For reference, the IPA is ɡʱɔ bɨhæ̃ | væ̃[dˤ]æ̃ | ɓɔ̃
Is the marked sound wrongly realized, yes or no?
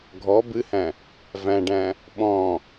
yes